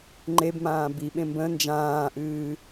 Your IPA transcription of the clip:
ŋ͡ǃebmãː biɓẽ mbə̃ nd͡ʒãːʔɨː

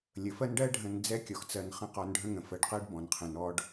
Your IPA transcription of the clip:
lʲə˩fɜ˥n ɖɜ˥ ɖʱə̃˨nd͡zɛ˦ kʲɔ˩xt͡sɜ˨nχə̃˦ qɔ˨nɖʱə̃˦ŋə̃˩ fɜ˨ɖqɜ˥ɖ bɔ̃˩nqʰɛ̃˨n ɔ˦ɖ

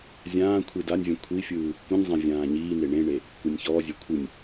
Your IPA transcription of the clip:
zʲãː kʷʰidanʲvʲɛ̃ kʷʰifʲɯː | kʷĩnʲzˤɛ̃ vʲãːɲiːne ɳẽɳe | kʷɛnʲçɔːzʲe kʷʰɯnʲ

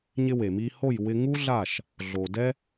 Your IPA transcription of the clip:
ɲɪ˧we˨mi˧ ho˦˨j wɪ˧ŋu˦ɮa˦˨ʃ | ɮo˨ dɛ˦

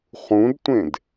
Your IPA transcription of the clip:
χũdtʷẽd

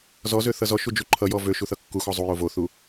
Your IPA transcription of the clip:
zɔzø θʌzɔʃu d͡ʒuǃʰʌjɔ vø ʃuθʌkːuxɔ zˤujo voθu

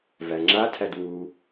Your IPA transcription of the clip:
væŋ͡ǁatʰæd wu

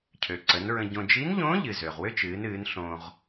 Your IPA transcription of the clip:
cʰø˩ǀə˩˧nɹə̃˧ɟõ˧ d͡ʒi˧˥nʎõː˧˥ʎɨ˩ zø˩ʁwʏː˥t͡ʃ ɨː˩˧nɨː˩˧n ɬõː˧ʁ

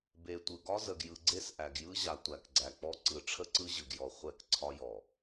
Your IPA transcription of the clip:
be˨tʷɯ˨ ɡɒ˦zə˨ɡ jɯ˨ɡ͡ǀe˦s ʔæ˨ɡjɯ˦ʑa˨ tʷæ˨kɡ͡ǀæ˨k͡pɔ˦ ǀɯ˨ʈ͡ʂʰə˦ǀɯ˦ ʑɯ˨ɡjɔ˨ χʷɛ˦k ǀʰɒ˦jɔ˨

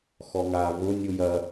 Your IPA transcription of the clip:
xɔŋa vʊ nʲujɐ

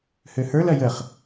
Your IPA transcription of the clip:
høhə˞l ɐjəχ

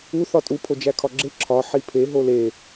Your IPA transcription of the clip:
u θɒtʼu pʰod͡ʒækʰɒɡ͡ǁe ǁʰɒ ħipʰe ɦole

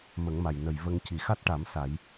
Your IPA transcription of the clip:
mə˨˩˦ŋma˨˩j nə˨˩jvə˧ŋ ci˨˩ xa˦˥t̚ʈa˨˩˦m sa˨˩˦j

